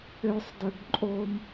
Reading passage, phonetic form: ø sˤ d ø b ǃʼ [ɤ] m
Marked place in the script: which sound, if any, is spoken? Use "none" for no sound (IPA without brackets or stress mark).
o